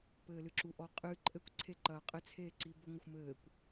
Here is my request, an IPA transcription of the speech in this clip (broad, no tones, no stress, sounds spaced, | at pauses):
p ɘː l ɨ ǁ u ʔ ɔ qʼ ɨ ǃʼ ɘ kʷ ǀʰ e ǃ ɐː qʼ ɘ t͡sʰ eː ǀ i b ɘ ŋʷ ɨ xʷ m ɘː kʷ